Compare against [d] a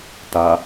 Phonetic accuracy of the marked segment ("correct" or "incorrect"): incorrect